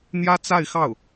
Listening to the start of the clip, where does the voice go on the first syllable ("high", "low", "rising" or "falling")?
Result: high